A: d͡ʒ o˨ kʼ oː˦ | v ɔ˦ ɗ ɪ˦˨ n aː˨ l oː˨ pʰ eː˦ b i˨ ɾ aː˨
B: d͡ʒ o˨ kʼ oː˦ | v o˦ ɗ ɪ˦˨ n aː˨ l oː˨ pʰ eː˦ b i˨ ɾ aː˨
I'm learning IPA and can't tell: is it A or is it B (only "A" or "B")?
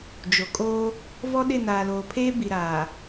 A